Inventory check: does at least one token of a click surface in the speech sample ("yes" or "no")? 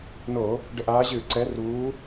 yes